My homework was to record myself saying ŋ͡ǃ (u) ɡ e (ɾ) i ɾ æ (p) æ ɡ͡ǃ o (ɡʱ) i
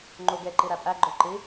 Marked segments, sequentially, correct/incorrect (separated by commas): correct, incorrect, incorrect, incorrect